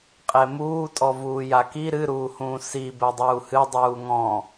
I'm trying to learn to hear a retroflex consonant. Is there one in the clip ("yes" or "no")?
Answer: no